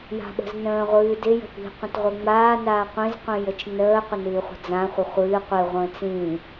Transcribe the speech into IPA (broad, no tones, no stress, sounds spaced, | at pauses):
j a̤ ɓ ə̤ z n ə̃ː ʁʷ ɨː d ɪ j ə̤ p i̤ qʷ ə̃ t ʁʷ ɨ ŋ͡m aː n aː qʷ ĩ z qʷ ĩ j ə t͡ʃ n əː qʷ ə n ɨː χʷ ə̤ d͡z ã χʷ ə χʷ ɨː qʷ i ʁʷ ə̃ː t͡s ĩ